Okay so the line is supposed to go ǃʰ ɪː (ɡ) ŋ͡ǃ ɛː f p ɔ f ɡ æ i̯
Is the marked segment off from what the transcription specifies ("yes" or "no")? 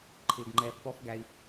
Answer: no